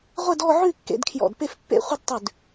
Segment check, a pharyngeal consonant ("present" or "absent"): present